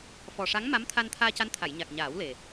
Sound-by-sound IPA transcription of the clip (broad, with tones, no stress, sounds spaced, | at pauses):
f ɔ˨˩ ʂ a˧˥ ŋ m a˧˥ m t̪ʰ a˧ n t̪ʰ aː˧ c a˧˥ n t̪ʰ a˨˩˨ j ɲ a˨˩ k̚ ɲ aː˨˩˦ w l e˨˩